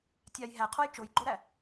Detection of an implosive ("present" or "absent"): absent